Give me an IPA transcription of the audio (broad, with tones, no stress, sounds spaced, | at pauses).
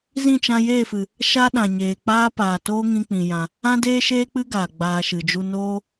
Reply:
z ĩ˦˨ t͡ʃ ã˧ j eː˦˨ f ɨ˨ | ʃ a˦ ɗ ã˨ ɲ eː˨ k͡p aː˦ p aː˨ t oː˦ ŋ ĩ˧ k͡p ĩ˨ j ã˧ | ã˦ d eː˦ ʃ eː˦ k͡p ɨ˦ ɡ aː˨ ɡ͡b aː˧ ʃ ɨ˨ d͡ʒ u˦ n oː˦